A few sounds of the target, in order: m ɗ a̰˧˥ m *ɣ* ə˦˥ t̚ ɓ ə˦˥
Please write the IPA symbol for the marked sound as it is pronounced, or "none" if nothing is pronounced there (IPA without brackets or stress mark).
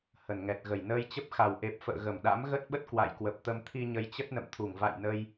ɣ